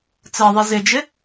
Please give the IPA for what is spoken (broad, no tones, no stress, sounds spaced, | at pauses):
t͡s ɜ ðˤ i z ɪ d͡ʒ ɪ